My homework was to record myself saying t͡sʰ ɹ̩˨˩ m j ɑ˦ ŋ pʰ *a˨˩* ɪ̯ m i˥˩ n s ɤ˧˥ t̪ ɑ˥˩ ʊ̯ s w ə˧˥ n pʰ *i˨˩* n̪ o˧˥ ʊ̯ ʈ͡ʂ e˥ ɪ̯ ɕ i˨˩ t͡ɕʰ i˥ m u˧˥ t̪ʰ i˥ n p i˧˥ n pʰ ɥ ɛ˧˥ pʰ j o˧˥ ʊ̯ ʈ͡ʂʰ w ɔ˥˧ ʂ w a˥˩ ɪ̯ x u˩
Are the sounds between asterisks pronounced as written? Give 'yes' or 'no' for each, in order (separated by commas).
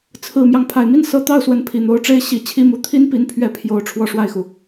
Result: yes, yes